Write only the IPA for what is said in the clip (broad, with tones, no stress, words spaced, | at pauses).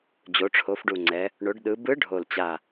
d͡ʑo˩˧ʈ͡ʂʰo˩˧fɖu˨˩ŋ͡ǀɛ˩˧ | ɳo˩˧ɖɗɯ˩˧ bɯ˧˥ ɖʱo˨˩lt͡ɕa˨˩